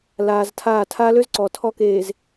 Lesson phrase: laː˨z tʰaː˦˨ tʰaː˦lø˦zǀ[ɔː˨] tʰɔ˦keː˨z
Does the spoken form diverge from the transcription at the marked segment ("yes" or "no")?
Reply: no